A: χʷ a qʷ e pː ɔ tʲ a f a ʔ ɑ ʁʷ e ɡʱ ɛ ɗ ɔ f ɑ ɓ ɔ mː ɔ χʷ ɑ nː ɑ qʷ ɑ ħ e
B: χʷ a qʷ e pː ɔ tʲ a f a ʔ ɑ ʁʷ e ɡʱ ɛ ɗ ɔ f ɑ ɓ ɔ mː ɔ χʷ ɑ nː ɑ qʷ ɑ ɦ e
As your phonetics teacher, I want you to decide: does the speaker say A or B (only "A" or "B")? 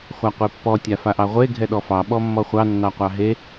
B